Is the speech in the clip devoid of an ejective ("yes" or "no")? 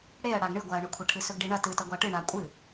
no